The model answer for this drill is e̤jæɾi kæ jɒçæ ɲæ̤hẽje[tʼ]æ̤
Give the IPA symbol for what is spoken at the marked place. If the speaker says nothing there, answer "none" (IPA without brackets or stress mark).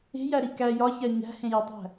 tˤ